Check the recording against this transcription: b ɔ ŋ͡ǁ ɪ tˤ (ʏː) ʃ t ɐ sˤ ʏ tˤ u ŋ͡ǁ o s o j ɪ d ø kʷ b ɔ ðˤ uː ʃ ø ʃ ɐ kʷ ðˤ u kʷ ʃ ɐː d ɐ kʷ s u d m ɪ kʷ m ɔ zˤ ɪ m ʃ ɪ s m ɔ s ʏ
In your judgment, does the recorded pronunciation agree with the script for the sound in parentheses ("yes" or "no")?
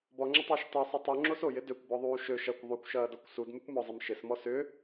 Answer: no